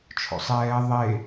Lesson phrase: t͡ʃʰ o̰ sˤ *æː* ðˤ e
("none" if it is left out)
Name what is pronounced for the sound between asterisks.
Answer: ɛː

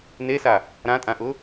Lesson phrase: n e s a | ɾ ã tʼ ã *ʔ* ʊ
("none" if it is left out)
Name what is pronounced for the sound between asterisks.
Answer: ʔ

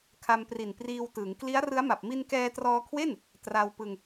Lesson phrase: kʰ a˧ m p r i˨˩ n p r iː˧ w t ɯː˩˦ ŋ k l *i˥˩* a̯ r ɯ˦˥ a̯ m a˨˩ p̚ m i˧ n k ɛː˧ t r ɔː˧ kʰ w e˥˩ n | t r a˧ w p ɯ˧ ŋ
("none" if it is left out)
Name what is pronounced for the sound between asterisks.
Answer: i˦˥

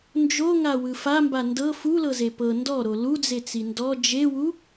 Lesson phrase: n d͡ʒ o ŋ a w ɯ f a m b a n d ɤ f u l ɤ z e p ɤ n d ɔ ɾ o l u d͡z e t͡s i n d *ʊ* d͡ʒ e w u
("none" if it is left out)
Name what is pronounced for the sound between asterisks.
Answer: ɔ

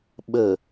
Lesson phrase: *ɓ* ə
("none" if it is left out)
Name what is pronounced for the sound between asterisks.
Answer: ɓ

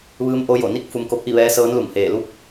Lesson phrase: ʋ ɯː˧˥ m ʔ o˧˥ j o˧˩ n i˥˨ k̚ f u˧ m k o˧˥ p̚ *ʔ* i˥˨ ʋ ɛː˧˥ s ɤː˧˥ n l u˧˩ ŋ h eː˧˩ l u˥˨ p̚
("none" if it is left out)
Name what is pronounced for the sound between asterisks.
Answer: ʔ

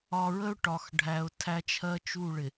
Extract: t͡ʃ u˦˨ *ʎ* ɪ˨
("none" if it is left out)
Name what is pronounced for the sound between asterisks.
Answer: ɭ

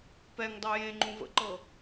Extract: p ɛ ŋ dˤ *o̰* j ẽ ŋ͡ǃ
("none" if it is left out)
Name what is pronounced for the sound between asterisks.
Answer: o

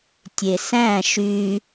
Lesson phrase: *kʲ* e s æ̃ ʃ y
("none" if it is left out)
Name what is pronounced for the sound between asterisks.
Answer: tʲ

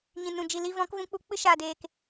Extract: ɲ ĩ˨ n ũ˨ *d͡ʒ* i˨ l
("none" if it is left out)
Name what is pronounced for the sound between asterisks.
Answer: d͡ʒ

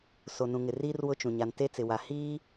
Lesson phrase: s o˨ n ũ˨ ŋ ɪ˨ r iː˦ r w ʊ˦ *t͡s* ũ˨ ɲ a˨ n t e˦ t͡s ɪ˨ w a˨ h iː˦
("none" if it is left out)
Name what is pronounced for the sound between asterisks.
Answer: t͡ʃ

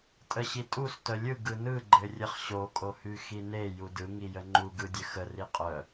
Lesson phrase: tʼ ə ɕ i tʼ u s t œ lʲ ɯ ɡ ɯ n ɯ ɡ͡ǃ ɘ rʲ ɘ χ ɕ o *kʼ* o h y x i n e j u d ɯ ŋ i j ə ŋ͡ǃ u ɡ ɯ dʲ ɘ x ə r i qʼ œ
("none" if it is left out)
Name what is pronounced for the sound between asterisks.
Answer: kʼ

